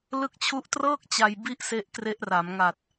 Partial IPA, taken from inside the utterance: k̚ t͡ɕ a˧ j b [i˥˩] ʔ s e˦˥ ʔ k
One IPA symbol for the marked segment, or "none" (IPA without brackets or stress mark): i˥˩